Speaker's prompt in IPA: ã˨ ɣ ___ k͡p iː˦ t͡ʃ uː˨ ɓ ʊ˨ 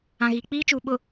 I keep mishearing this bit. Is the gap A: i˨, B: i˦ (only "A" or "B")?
A